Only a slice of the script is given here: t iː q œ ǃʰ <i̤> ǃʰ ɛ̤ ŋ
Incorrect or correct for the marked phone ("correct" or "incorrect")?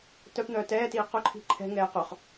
correct